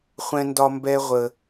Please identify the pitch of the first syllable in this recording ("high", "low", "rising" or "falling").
high